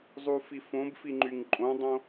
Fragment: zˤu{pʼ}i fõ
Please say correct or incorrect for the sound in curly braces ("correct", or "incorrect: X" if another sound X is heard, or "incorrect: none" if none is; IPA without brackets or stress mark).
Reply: incorrect: f